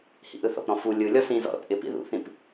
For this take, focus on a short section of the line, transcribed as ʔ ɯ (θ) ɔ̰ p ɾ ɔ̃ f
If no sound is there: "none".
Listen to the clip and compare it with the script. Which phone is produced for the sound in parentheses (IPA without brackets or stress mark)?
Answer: θ